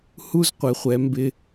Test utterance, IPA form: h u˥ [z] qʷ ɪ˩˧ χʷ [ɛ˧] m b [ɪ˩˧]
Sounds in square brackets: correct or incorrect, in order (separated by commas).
correct, incorrect, incorrect